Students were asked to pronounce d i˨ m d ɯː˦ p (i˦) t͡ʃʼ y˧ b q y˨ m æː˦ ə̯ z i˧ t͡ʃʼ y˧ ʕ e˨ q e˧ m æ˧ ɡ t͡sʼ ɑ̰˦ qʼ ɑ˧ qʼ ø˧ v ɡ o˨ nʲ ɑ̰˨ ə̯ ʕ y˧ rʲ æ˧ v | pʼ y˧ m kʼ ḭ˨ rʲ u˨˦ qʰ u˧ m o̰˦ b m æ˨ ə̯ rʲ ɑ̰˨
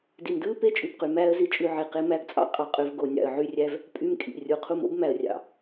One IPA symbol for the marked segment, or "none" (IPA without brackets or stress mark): e˦